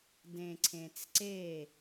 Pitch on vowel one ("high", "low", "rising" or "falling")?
low